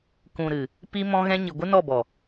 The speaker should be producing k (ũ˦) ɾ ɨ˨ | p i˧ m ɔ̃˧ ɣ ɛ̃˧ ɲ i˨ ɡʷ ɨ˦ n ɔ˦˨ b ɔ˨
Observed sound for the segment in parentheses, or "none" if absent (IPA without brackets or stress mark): ũ˨